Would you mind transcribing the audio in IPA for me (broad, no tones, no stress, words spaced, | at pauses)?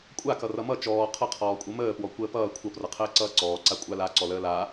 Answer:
kʷʼakʌ rʌmʌ t͡ʃɔː qʰʌqʰɔː kʷʼʌməːpwɔ kʷəːpʌː kʷʰʌprʌqʰəː ǀʌːǀɔːǀa kʷʼalaǀɔləː la